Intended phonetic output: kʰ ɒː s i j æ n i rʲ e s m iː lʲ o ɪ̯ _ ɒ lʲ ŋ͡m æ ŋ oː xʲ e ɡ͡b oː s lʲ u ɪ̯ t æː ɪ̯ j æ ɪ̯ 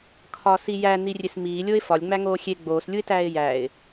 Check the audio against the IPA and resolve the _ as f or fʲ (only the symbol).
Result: f